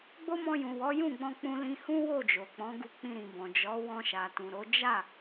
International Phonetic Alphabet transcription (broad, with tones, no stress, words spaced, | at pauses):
ɡ͡bo˦mɔ̃˧jũ˨wɔ˨˦ jũ˦˨ɡ͡bɔ̃˧ k͡pũ˧lĩ˧ hũ˦wo˦˨d͡ʒo˨k͡pɔ̃˨˦ ɡu˧k͡pĩ˧ɾĩ˨bɔ̃˨ d͡ʒɔ˨˦ wɔ̃˧ʃa˨tũ˨ɾo˨˦ d͡ʒa˦˨